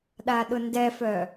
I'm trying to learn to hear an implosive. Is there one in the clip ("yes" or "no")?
yes